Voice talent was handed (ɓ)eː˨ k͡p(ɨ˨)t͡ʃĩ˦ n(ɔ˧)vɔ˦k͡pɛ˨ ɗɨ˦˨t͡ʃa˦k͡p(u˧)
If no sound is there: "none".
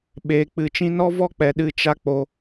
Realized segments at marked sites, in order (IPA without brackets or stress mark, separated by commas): ɓ, ɨ˨, ɔ˦, o˧